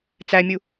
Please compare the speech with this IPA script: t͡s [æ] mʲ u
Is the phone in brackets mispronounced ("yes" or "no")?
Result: no